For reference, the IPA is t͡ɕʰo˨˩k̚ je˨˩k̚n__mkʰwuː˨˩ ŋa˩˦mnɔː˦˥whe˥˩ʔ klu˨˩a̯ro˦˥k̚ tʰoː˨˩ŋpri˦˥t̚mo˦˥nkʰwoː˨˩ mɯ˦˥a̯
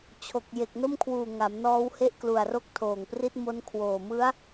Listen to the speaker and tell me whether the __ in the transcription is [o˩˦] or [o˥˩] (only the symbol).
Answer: o˥˩